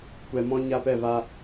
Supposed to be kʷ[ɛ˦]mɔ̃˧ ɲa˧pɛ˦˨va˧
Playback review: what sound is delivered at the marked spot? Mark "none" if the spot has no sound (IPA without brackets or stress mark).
ɛ˨